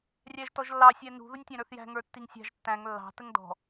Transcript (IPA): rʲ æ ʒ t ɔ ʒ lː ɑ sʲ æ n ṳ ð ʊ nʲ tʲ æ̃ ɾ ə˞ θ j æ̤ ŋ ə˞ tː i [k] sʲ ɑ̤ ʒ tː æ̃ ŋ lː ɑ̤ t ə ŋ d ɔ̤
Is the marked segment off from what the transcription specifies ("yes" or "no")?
yes